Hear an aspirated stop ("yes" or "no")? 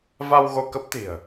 no